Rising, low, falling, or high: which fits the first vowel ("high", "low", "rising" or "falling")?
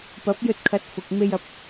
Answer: rising